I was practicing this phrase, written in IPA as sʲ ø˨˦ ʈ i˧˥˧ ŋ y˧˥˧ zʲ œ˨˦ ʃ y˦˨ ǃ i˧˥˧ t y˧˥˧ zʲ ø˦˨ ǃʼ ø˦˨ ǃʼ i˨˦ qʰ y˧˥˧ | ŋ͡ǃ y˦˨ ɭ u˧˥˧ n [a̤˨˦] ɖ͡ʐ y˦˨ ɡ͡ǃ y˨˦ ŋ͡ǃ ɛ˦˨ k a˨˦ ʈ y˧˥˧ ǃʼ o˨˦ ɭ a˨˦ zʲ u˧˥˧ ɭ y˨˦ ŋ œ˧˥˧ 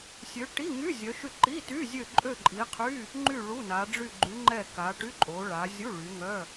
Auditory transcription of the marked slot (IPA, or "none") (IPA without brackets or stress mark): a˨˦